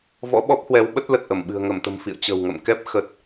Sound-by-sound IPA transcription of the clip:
v ɔ̰˧˥ ɓ ɔ˦˥ p̚ h w ɛ˨˦ w ɓ ə˦˥ t̚ l ə˨˩ t̚ ʔ ə˧˩ m ɓ ɨ̤˨˩ ə̯ ŋ ə˧˩ m t̪ ə̤˨˩ m f ḭ˧˨ ə̯ t͡ɕ ə̤˨˩ w ŋ ə̰˧˨ m k ɛ˦˥ p̚ x ə˨˩ t̚

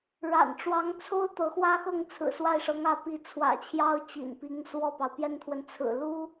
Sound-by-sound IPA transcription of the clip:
ɻ a̰˨˩ n ʈ͡ʂ w ɑ˧˥ ŋ t͡sʰ o˥ ʊ̯ t̪ ɤ˧˥ x w ä˥ x ɤ˥˩ ŋ t͡sʰ ɹ̩˨˩ s w a˥˩ ɪ̯ ʂ ɤ˧˥ ŋ ä˧˥ p i˧˥ t͡sʰ w ä̰˨˩ t͡ɕʰ j ɑ˥ ʊ̯ t͡ɕ ḭ˨˩ n p i˧˥ ŋ s w ɔ˥˩ p ɑ˩ ʊ̯ p j ɛ˥ n t̪ʰ w ə˨ n t͡sʰ ɹ̩˨˩ l u˥

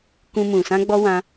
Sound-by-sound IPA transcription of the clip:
k ũ˧ m ũ˨ s ã˧ ɡ͡b ɔ˧ w ã˧

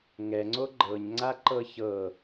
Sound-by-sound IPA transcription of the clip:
ŋ ɛ ŋ͡ǀ o ɡ͡ǃ ɤ ɲ ŋ͡ǀ a ǃ ɤ ç ɤ

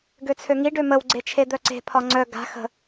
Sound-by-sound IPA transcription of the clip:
ɡ ø t͡sʰ ø ŋ i ɖ ø m ə w ɡ͡ǀ e t͡ʃʰ e d̪ œ ǀ e̤ pʰ ɒ ŋ͡ǀ œ ɡ a̤ x ə̤

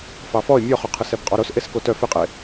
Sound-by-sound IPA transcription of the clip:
f ɑ f ɔ ɪ̯ mʲ ɔ χ œ qʰ ɯ s ɛ b qʼ ɔ ɾ o s ʔ e s k o t œ f ɪ qʼ e

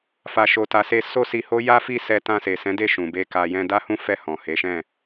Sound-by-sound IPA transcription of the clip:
f a˨ ʃ o˨ t a˨ s e˧ s o˦ s i˧ h o˦ j a˦ f i˦˨ s ɛ˧ t ã˧ s e˨ s ɛ̃˨˦ d e˦˨ ʃ ũ˨ b e˧ k a˨ j ɛ̃˧ d a˦ h ũ˦ f ɛ˦˨ h ɔ̃˨ h e˨˦ ʃ ɛ̃˦˨

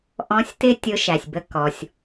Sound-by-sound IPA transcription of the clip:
ʔ ɔ̃˧˥ sʲ t ɪ˥ tʲ ʊ˧˥ ʃ æ˩ sʲ b ə˧ k ɔ˩ sʲ

